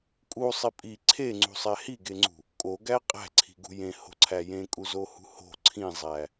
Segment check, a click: present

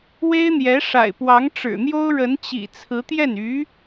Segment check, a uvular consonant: absent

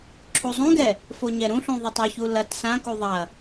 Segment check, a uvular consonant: absent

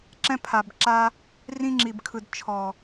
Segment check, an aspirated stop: present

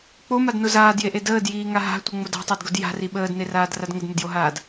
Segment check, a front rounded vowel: absent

